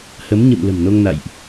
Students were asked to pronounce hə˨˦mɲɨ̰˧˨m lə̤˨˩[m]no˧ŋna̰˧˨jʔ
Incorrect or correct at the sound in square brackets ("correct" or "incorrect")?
correct